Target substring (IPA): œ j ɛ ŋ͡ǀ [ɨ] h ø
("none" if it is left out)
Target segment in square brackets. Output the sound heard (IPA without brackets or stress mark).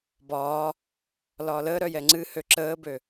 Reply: ɨ